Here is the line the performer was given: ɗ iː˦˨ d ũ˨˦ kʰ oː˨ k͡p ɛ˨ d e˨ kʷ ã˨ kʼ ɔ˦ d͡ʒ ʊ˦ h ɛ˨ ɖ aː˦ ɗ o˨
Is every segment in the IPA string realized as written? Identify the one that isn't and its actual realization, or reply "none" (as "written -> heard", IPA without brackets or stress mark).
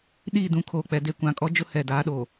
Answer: ɖ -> d